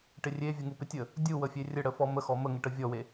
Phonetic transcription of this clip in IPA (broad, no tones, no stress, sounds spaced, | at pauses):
ʈ ɪ rʲ e vʲ ə ŋ u p ɪ tʲ ə | dʲ u w ə fʲ e rʲ ə ɽ ə f ɔ m ə x ɔ m ə ŋ ɪ ʈ ə vʲ ɔ w e